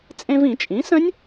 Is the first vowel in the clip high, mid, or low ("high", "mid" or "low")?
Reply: mid